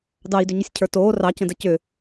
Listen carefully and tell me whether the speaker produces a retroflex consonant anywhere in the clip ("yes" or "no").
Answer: no